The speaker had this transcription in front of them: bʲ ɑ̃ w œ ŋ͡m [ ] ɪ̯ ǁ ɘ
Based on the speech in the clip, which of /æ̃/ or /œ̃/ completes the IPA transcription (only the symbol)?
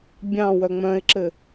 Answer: œ̃